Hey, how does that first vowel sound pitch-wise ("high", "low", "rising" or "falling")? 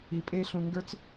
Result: low